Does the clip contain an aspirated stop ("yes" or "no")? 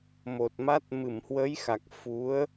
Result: no